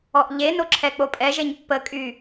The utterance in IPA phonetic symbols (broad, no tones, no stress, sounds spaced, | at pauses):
ɔ ʔ ʎ e n o ǁʰ ɛ k͡p o pʼ ɛ ʒ e ɲ pː ə kʼ y